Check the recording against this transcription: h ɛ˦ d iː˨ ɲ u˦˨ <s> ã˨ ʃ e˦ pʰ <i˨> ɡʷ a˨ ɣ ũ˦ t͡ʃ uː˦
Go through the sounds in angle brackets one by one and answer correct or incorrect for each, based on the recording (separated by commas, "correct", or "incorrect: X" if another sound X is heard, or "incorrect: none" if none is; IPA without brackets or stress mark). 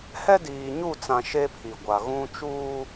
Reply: incorrect: t͡s, correct